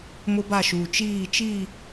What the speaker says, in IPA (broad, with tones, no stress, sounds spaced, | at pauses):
m ʊ˦ b a˦˨ ʃ uː˨ t͡ʃ iː˦˨ t͡ʃ i˦˨